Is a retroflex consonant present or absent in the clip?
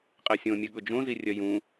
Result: absent